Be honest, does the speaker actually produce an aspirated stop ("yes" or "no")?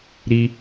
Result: no